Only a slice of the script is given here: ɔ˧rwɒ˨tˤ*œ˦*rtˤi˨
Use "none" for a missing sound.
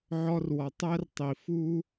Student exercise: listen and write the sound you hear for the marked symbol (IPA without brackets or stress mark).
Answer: æ˦